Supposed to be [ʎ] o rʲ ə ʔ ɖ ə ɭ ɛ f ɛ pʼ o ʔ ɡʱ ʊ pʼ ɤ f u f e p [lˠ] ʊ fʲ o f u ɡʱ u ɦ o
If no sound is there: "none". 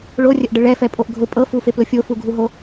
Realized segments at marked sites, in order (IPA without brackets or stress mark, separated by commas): ɭ, l